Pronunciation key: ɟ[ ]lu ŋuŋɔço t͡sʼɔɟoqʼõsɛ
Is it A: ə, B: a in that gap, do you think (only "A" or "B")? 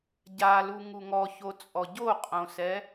B